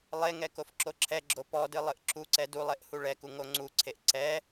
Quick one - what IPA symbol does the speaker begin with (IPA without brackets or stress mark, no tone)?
lˠ